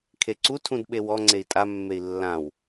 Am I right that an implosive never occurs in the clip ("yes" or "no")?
no